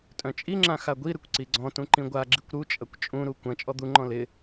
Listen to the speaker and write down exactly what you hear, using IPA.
tʼ œ̃ t͡ʃʼ i ŋ͡ǁ ã x a ɡʷ i ɾ ɪ kʷ ǀ i ɡ͡ǀ ɔ̃ t ũ ǃ ĩ ɡʷ a ɡ͡ǁ i kʷ ɾ u t͡ʃʼ ɐ kʷ t͡ʃʼ ũ ɾ u kʷ ɐ̃ t͡ʃʼ ɔ d̪ u ŋ͡ǃ ɔ̃ l ɪ

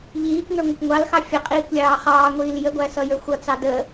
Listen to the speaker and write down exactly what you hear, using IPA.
ʎ iː k ŋ ə˞ ŋʷ ʌ kʷ ŋʷ ɑ l x ɑ fʲ ə qʼ iː kʷ lʲ ɑː χ ɑː ŋʷ iː l j ə ɡʷ æ s ʌ j ə˞ xʷ ʌ t͡s ɑ d ə

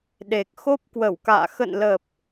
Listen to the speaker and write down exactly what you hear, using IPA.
ɗ e˨˩ k̚ x o˦˥ p̚ k w ə˧˩ w k a̰ː˧˨ x ə̰˧˨ n l ə˨˩ p̚

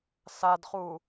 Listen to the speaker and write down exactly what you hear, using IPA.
s a d χ u

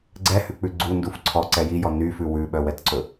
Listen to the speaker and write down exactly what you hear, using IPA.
ɡ͡ǀ ɛ h ʉ k͡p ʉ ɡ͡ǀ u n d u f ǀʰ ɔ ǀ ɛ j i j ɔ n y f ʉ w ʉ ɓ œ w ɛ t ǀ ɵ

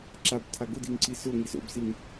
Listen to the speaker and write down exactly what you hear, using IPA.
ǁ a b tʰ a ɡ ʊ d i ŋ ǀ i s ʊ ŋ i s o̰ b s i ŋ

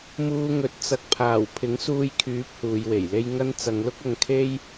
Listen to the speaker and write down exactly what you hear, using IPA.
m uː˧ ŋ ɵ˨˥ t̚ t͡s ɐ˨ k̚ pʰ aː˨˩ w pʰ ɪ˨˥ ŋ s uː˧ j kʰ yː˨˥ p̚ h uː˨˧ j w e˨˩ j l e˥ j ŋ ɐ˥ n t͡s ɐ˨˧ ŋ l ʊ˥ k̚ ɐ˧ ŋ kʰ e˥ j

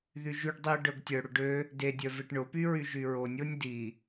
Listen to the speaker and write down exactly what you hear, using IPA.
ð y ʒ y ɖ dˤ i ə̯ ɖ œ ɡ tʲ œ ɽ ʊ ɖ ø | d e dʲ œ v e ʈ ɳ ʊ p y ɹ y ʒ y ɹ o nʲ o nʲ d i

